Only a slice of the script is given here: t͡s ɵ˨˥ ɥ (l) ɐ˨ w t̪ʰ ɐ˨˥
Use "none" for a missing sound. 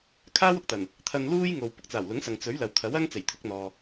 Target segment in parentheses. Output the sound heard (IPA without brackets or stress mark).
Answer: l